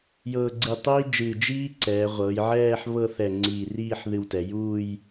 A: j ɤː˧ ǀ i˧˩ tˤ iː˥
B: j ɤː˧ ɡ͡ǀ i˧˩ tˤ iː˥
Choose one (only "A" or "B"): B